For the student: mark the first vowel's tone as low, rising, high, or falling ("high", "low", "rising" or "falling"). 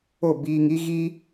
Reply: falling